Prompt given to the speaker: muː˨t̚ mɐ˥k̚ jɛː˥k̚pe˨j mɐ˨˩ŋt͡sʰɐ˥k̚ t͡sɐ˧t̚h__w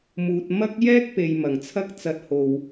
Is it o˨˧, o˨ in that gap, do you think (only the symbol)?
o˨